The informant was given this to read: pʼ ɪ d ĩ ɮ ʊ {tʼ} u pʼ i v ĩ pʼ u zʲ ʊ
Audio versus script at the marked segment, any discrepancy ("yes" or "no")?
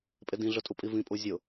no